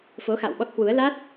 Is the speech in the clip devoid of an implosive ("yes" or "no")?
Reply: no